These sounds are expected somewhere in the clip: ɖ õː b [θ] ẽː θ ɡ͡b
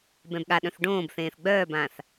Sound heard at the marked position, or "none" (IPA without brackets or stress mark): θ